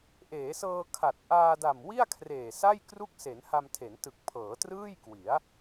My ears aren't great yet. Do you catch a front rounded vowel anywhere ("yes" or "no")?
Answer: no